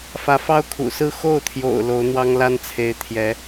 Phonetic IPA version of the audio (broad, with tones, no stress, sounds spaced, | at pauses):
f ä˧˥ f ɑ˥ ʊ̯ kʰ ṵ˨˩ s ɹ̩˥˧ x o˥˩ ʊ̯ t̪ʰ j o̰˨˩ ʊ̯ l o˧˥ ʊ̯ n̪ w ɑ˥ ŋ l a˥ n t͡sʰ e˧˥ ɪ̯ t̪ʰ j ɛ˧˥